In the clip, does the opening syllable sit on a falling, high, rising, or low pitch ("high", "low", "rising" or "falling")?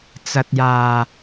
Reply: low